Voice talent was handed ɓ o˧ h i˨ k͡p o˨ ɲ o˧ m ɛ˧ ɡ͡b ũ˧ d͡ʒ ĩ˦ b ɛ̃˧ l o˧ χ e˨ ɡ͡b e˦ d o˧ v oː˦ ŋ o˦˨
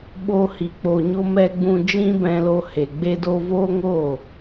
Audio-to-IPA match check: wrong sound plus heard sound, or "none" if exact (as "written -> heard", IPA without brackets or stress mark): χ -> h